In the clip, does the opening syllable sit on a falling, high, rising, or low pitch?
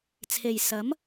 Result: low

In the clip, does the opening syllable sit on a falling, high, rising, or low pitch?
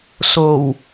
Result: low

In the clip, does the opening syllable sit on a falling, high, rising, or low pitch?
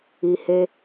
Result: low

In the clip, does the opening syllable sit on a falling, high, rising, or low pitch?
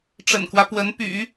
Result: low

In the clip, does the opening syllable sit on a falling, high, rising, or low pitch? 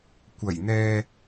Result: low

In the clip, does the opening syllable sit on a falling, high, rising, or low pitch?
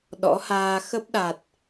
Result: rising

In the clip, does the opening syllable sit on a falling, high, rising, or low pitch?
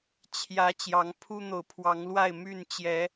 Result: rising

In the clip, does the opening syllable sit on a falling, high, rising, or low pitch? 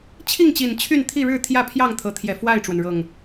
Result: falling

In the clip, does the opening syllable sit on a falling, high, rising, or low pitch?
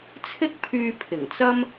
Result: high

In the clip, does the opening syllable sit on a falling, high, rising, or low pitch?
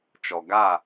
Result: low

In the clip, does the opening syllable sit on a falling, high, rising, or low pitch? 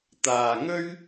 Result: low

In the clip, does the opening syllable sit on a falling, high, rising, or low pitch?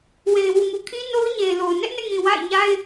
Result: low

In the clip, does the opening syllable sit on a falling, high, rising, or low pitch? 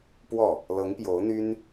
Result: falling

